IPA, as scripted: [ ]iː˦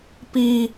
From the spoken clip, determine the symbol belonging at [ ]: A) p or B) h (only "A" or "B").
A